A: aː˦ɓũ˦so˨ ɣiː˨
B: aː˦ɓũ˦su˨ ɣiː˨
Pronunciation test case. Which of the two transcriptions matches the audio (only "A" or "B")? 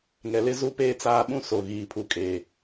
A